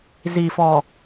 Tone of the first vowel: low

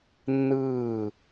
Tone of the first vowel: falling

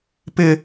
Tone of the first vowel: high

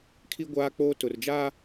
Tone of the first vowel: high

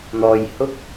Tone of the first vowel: low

